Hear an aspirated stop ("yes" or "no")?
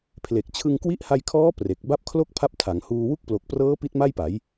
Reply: yes